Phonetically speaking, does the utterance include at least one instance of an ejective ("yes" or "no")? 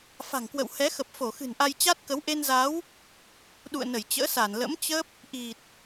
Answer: no